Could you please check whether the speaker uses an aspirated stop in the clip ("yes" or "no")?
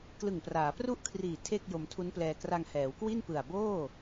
yes